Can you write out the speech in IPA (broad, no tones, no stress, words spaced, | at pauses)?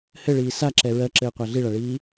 hɘɭiː saǁɛ ɹɜǁɘːqʷæ ɮiɭaɭiː